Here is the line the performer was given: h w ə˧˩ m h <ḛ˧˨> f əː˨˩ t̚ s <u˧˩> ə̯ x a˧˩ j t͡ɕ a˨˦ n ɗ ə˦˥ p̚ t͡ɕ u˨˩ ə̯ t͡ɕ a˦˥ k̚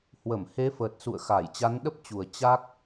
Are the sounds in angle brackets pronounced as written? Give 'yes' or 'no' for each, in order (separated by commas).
no, no